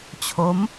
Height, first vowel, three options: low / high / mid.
mid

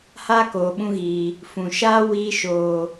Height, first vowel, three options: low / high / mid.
low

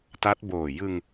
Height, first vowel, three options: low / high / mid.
low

